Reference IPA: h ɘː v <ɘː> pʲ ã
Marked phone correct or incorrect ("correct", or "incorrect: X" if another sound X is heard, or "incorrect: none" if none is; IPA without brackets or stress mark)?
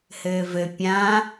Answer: incorrect: ɘ